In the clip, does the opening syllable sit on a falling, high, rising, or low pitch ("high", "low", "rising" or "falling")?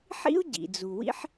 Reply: high